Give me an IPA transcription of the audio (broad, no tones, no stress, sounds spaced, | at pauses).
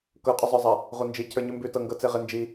k ɤ qʼ ʉ zˤ ə˞ zˤ a | ʁʷ ɤ n d͡ʒ i cʰ ə˞ ɲ ʉ m b ʉ t ɤ ŋ ɡ ɤ t͡s e ʁ ɪ n d͡ʒ i